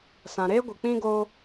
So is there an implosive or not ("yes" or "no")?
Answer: no